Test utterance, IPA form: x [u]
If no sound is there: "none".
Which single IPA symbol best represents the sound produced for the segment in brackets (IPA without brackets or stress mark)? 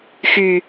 y